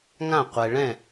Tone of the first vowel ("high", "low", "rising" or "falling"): falling